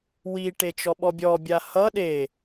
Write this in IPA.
wiʈet͡ʃɔ ɓɔbʲɔ bʲahʌ ɗe

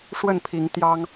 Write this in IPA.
ʂwə˥˨npʰi˨˦ŋ t̪jɑ˦ŋ

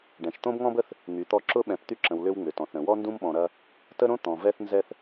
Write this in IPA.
ɖɛ̃˨ʃ t̪õ˦bŋɔ̃˦bə˦θ | ŋy˨˦t̪ɔ˦ ǁʊ˦ɓɛ̃˨p t̪y˦ǁə̃˨w lʏ˦wŋ͡mʏ˨tɔ̃˨θɾə̃˨ wɔ˦ndũ˦mɓɔ̃˨ ɾɐ˦ | tə˦ɾõ˦ t̪ɔ̃˨vɛ˦θ nzɛ˦θ

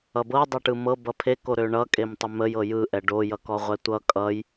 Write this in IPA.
ʌbɤdˤøʈɯ mɤ bʌpʰeko ɾøɳʌkʼemtˤə məjɤ jɯʔɛ ɖojʌkɔʁʷɛ tʷʌ kʼʌj

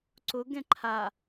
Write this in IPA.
ǀʊɡɛ̃ ǃʰa

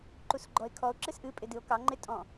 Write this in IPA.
ǃusɡ͡ǃɔe̯kʰɔo̯ ǁɨsʔɨ pʼɪdɨo̯kɑ ŋ͡ǃɪ tʼɔ̃

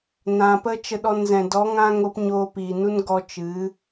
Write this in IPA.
nã˨ pə˦t͡ʃə˧ɗɔ˧n zɛ̃˨dɔ˨˦ ŋã˦ŋo˦p ɲoː˧piː˨nu˦n ɡɔ˧t͡ʃɨ˨˦

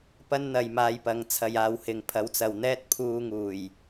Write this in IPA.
pɐ˥nn̪ɐ˧jmaː˧jpɐ˨˧ŋ t͡sʰɐ˨jaː˨w hɪ˨ŋpʰɐ˨˥wt͡sɐ˨wn̪ɛː˥t̚ pʰuː˧ŋuː˨˩j

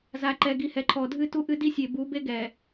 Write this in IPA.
za˨ǃɛ˨ ɡi˨hɛ˨ǃʰɔ˨dʱɨ˦ tu˦ʔɨ˦ di˦sʲe˨bu˨˦ be˦ɡɛ˨

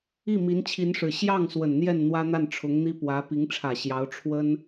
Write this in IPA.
i˥˩mi˧˥nt͡ɕʰi˧˥nʂɻ̩˨˩ ɕjɑ˥˩ŋ swə˨˩nn̪jɛ˥˩n n̪wä˥n̪a˥˩nʈ͡ʂʰʊ˧˥ŋn̪i˥ pwä˧˥ pi˧˥ŋʈ͡ʂʰä˨˩ɕjɑ˧˥ʊ̯ ʈ͡ʂʰwə˥n

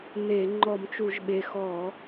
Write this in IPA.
n̪e˧˩˧ ŋ͡ǃɔ˧˩˧mt͡ʃu˧˩˧ʒɓe˨˩ xɔ˧˩˧

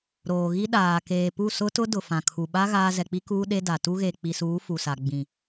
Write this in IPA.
ɾoː˨ɣi˦ɗaː˨ keː˨pu˦˨ sʊ˦tʊ˦ dʊ˨fã˨kʰu˨ɓa˦ ɣaː˦ zɛ˨k͡pi˦ kuː˦ɗe˦ da˨ tu˦ɣe˨ k͡pi˨suː˨˦ fu˨sa˨ ɡ͡bĩ˨

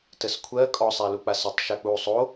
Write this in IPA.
təskʷʰɜ kʼɔsˤæluk͡pas ətˤ ʃak͡pu sˤo

